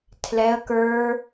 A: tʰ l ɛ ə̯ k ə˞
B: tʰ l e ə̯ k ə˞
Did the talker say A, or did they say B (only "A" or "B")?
A